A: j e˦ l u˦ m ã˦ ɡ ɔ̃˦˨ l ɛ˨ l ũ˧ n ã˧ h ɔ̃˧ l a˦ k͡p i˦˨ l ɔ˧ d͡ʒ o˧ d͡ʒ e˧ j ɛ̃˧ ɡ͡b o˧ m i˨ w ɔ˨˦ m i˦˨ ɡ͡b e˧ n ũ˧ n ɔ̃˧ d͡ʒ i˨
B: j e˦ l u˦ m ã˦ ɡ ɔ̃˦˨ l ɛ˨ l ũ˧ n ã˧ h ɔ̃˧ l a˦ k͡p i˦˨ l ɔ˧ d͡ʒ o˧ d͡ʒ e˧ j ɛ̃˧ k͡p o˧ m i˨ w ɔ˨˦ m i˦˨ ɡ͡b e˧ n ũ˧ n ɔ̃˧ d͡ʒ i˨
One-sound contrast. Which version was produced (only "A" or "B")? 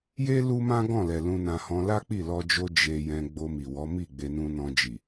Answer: A